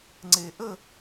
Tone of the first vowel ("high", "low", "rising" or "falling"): low